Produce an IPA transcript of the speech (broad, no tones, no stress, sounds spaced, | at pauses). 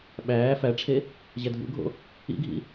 ɓ æː f æ ʈ͡ʂʰ e | ʑ æ dʱ ṵ ɡʱ o̰ | ḭ ɡʱ ḭ